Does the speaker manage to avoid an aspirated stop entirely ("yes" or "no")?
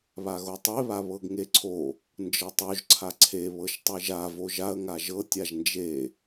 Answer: no